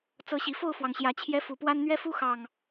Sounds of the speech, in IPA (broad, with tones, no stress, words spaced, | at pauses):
t͡sɤ˨˦ɕi˨˩fo˥˨ʊ̯fwɑ˩ŋ ɕjä˨˩t͡ɕʰjɛ˨˦ fu˨˩pwa˦n n̪ɥɛ˦fu˦xɑ˨˩ŋ